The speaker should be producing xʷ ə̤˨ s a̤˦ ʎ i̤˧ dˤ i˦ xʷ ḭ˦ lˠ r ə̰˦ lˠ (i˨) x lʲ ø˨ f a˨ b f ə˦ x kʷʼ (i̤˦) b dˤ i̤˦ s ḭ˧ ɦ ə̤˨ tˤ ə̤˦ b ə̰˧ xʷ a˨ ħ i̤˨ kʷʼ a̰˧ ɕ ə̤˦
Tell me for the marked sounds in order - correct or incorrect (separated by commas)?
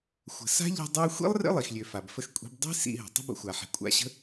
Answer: correct, correct